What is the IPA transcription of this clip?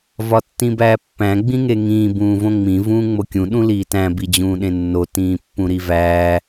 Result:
v ɒ tː ĩ b æː pː æ̃ ɡ͡b ĩ ŋ e ŋ ĩː b ũː v õ ŋ͡m ĩ v ũː ŋ͡m o kʲ ũ ɗ ũ l iː t æ̃ b i d͡ʑ ũː ɗ ẽ nː o t ĩː pː ũ ɾ i v æː

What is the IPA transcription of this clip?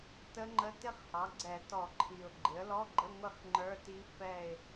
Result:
t ə˦˥ ŋ͡ǃ ə˧˥˧ t ɪ˦˥ χ h ɑ˩˥ ɡ͡ǀ ɛ˧˩˧ t ɔ˧˩˧ ǃʰ i˨˩ ʊ̯ ɡ͡ǃ ɪ˩˥ ə̯ l ɔ˧˥˧ ɡ͡ǃ ə˧˥˧ ŋʷ ɪ˥˧ χ ŋ͡ǃ ə˞˧˥˧ t i˦˥ f ɛ˥˧ ɪ̯

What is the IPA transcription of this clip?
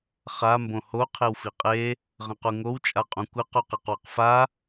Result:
χ a m b õ h o qʰ e w f i qʼ e | ʁ ə̃ q u ŋ o w t͡ʃʼ a qʼ ũ kʷ ɘ q u q e q w ə q f a

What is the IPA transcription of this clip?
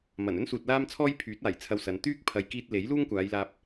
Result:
m ɐ˨˩ n ɵ˥ n s uː˨ t̚ l aː˥ m t͡sʰ ɔː˥ j pʰ yː˨˥ t̚ aː˨˩ j t͡sʰ ɐ˧ w s ɐ˨˧ n t̪ yː˥ k̚ pʰ ɐ˨ j k iː˧ t̚ l e˨˥ j l uː˥ ŋ kʷ aː˨˧ j l aː˧ p̚

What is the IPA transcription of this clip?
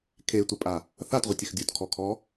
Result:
kʰ e tʷ ɪ pʼ a | θ a t ʁʷ ɪ tʲ ɪ x dʲ u t kʰ ɔ kʰ ɔ

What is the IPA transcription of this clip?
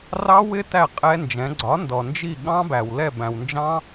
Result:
r ɑ˦˥ w ɪ˦˥ t æ˥˩ qʼ ɛ˦˥ n d͡ʒ ɛ̃˩˥ ɡ͡ǀ ɒ˩˥ n d ɔ˩ n d͡ʒ i˥˩ ɠ ɑ̃˦˥ b æ˩ w l ɛ˥˩ b æ̃˩ w n d͡ʒ ɑ̃˦˥

